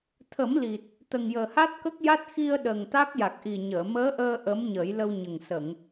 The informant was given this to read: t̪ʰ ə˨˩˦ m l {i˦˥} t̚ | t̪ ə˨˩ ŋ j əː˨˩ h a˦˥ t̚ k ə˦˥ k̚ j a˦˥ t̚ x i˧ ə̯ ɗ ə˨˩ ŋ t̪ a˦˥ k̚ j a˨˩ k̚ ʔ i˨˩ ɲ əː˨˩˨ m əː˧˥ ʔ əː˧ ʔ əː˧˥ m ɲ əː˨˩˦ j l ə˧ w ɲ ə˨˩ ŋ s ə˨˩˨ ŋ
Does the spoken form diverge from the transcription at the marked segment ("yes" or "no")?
yes